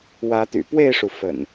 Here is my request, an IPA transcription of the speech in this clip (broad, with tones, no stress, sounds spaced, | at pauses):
w ä˨˦ t̪ y̰˨˩ p w e˥˨ ɪ̯ ʂ u˩ f ə̰˨˩ n